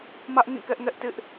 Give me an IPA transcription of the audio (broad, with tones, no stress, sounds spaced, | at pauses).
m ä˦ ʔ ŋ ĩ˦˨ k ɛ˦ ʔ ŋ ɛ˦ ʔ t ɪ˦ ʔ